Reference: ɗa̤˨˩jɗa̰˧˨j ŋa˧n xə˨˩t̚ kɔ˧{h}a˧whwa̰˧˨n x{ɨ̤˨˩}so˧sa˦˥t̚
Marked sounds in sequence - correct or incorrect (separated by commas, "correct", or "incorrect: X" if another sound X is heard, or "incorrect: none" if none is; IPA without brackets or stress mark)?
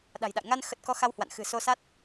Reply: incorrect: x, correct